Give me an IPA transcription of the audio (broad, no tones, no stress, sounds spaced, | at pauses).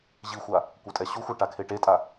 ʑ i xʷ a | kʷ œ tʼ ɛ ɕ u xʷ a ʈ a kʰ e ʈ e tʼ a